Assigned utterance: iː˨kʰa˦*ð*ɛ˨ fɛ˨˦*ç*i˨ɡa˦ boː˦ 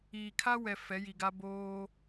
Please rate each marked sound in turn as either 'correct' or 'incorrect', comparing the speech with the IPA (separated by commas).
incorrect, incorrect